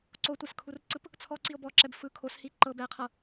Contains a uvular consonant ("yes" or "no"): yes